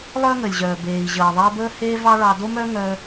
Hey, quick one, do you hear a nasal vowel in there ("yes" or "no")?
no